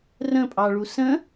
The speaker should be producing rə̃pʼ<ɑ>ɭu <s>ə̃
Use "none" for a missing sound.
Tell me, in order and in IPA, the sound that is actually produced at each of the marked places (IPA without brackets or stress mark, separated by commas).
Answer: ɑ, s